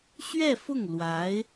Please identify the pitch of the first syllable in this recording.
falling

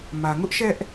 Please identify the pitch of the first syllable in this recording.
low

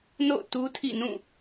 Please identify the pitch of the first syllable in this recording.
falling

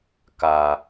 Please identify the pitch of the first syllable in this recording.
low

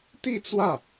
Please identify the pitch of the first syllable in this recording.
falling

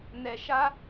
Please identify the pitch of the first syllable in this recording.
low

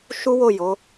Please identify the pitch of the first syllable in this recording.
high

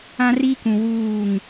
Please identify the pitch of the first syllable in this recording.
high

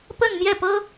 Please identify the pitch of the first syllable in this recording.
falling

